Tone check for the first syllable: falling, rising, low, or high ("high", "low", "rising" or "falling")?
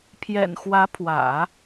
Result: low